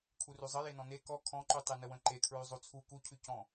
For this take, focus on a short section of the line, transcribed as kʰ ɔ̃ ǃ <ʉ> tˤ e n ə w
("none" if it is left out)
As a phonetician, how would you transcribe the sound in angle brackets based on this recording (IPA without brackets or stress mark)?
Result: ʉ